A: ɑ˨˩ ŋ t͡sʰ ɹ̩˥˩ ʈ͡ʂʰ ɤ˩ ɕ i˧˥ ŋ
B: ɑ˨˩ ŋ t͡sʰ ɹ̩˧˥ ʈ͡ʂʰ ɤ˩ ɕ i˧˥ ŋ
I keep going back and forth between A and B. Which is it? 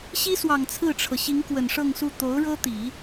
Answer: A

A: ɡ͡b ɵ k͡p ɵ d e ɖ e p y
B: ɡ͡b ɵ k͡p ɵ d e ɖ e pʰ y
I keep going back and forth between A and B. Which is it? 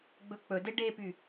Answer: A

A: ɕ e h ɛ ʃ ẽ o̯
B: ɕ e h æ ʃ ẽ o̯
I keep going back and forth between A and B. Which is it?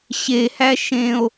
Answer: B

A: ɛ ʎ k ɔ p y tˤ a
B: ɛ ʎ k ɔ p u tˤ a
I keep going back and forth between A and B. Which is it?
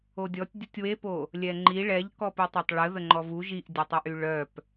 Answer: B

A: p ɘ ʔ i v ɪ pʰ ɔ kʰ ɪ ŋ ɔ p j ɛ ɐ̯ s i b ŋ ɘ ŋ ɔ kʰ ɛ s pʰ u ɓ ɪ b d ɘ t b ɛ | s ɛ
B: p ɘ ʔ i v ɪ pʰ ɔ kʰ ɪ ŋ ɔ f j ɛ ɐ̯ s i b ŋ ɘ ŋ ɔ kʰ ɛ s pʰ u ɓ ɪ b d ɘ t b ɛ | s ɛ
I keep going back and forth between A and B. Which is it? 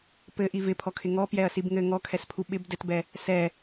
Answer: A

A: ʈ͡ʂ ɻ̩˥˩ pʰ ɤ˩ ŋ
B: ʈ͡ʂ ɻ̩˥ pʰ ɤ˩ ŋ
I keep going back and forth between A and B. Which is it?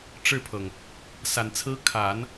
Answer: A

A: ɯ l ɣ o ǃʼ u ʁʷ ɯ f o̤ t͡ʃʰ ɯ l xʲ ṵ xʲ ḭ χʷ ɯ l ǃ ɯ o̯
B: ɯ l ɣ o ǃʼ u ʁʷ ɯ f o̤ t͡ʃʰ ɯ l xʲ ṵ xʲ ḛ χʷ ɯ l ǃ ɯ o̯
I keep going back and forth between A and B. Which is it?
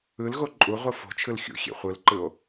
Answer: B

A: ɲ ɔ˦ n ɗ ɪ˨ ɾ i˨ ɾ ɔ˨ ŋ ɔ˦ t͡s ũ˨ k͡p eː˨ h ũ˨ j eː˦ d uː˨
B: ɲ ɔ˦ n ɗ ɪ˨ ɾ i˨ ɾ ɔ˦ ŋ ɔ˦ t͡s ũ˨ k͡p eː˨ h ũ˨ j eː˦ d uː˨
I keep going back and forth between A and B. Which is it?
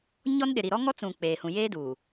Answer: B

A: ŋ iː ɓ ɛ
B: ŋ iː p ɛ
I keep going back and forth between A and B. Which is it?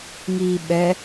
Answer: A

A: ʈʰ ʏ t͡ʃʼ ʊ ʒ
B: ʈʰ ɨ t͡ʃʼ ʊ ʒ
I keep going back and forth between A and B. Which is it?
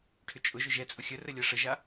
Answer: A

